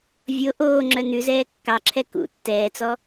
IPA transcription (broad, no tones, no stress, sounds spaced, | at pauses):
vʲ o ʔ oː ŋ͡ǁ œ n̪ ʉ z ɛː kː ɑ ǁʰ ɛ k ṵ tː ɛː t͡s ɔ